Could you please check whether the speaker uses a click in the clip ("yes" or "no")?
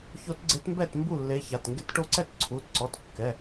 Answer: yes